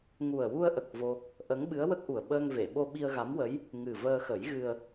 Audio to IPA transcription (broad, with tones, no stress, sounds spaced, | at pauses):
ŋ u˨˩ ə̯ w u˧ ə̯ ʔ ə˨˩ k̚ v o˧ | ʔ ə˧˥ ŋ ɓ ɨ˧˥ ə̯ w ə˦˥ k̚ ʔ u˨˩ ə̯ ɓ əː˧ ŋ v e˨˩˨ ɓ o˧ ɓ i˧ ə̯ ɣ a˧˥ m w ə˧˥ j | ŋ ɨ˨˩ v əː˧ x ə˨˩˦ j ɣ ɨ˧ ə̯